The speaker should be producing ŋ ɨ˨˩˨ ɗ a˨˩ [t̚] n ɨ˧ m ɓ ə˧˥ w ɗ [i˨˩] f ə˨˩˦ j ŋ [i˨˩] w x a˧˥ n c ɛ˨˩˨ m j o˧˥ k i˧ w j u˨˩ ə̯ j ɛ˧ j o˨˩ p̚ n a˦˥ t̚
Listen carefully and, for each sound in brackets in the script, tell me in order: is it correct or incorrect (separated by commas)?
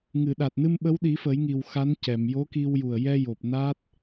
correct, incorrect, correct